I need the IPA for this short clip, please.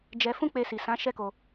d͡ʒ ɛ˧ f ũ˦ k͡p e˧ s i˨ s ã˨˦ ʃ ɛ˦ k o˧

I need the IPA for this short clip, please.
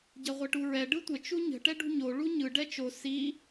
ɟ ɐ ʁʷ ɛ ʈ u ɹ ɛ ɖ ɯ tʷ ə t͡ʃ u ɲ ə̤ ʈ ɛ ɖ ṳ ɲ o ɭ u ɲ ɯ ɖ ɛ t͡ʃ o s i

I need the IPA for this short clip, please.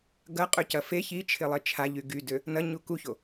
ɡ ɐ qʼ ø c ɐ f e ç i t͡ʃʰ ɪ lˠ e t͡ʃʰ a ʎ y ɡ y d ø | n ɐ ɲ u k u ç o

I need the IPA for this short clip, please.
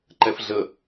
ǃ ɛ f ɮ ə

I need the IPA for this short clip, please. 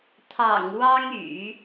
t̪ʰ ɑ̰˨˩ ŋ w ɑ˥ ŋ y̰˨˩˦

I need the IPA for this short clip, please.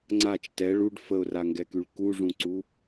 ŋ͡ǀ a t͡ʃ t ɛ ɭ u ɖ f ə ʊ̯ r a ŋ ɡ ɛ k y ɭ k u ʐ ũ ǀ u

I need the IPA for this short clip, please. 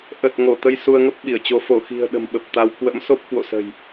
ʔ ə˨˩ t̚ ŋ o˧˩ t̪ ə˧ j s u˧ ə̯ ŋ ə˦˥ p̚ ɓ i˧˩ ə̯ t͡ɕ o˨˦ f o˧˩ x i̤˨˩ ə̯ ɗ ə̤˨˩ m ɓ ə˨˩ p̚ t̪ a˧ w k w ə̰˧˥ m s o˦˥ p̚ k w o̰˧˨ s ə̤˨˩ j

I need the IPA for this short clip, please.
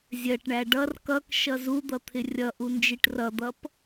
zʲ ɜ ʈ ɳ æ ɖ ʌ r k ʌ k ʃ ʌ z u d̪ ʌ t̪ʰ ɪ rʲ ʌ ʔ u n d͡ʒ i ʈ r ʌ d̪ ʌ p

